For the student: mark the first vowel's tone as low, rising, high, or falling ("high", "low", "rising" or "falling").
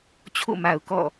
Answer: falling